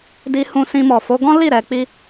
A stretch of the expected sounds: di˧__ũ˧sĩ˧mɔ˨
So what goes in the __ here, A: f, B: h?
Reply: B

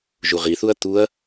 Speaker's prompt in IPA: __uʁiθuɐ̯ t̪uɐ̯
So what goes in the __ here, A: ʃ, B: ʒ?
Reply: B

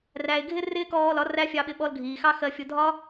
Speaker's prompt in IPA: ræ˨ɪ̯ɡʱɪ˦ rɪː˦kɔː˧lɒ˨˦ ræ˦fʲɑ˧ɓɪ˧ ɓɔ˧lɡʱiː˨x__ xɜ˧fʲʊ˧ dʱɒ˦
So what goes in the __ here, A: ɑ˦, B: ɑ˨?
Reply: A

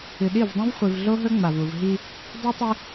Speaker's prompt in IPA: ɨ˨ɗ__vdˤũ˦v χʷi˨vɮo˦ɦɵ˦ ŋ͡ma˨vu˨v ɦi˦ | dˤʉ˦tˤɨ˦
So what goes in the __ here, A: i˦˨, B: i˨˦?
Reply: A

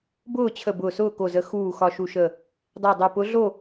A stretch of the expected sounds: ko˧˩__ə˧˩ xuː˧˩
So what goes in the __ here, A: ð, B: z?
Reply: B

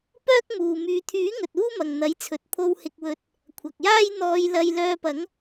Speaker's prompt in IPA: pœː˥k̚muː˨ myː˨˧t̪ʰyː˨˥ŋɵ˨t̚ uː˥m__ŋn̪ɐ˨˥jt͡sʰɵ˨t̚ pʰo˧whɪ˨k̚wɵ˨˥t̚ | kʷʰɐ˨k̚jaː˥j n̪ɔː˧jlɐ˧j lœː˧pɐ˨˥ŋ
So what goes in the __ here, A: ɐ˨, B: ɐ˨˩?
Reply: A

